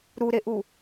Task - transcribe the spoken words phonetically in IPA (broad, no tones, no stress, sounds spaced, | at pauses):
ɾ u ɾ e ʔ u